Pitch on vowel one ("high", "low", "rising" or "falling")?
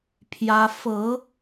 high